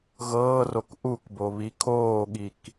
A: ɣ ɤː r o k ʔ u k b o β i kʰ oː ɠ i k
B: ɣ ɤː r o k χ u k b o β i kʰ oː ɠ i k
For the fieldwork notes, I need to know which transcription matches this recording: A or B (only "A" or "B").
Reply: A